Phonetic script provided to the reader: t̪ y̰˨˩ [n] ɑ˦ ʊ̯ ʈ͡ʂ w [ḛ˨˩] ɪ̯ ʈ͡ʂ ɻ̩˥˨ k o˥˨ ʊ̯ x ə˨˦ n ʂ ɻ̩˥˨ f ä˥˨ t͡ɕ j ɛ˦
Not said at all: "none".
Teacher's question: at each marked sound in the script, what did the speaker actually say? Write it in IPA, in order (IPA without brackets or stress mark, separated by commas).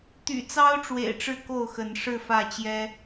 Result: t͡s, ḛ˨˩